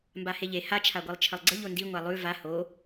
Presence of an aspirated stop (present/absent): present